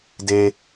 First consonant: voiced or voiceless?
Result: voiced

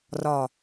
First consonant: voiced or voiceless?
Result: voiced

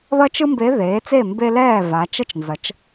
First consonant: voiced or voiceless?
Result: voiced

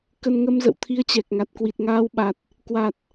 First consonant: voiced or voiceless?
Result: voiceless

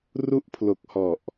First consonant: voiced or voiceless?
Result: voiced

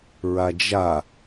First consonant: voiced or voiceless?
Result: voiced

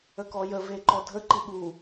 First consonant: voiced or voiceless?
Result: voiceless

